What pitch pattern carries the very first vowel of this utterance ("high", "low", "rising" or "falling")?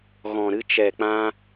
low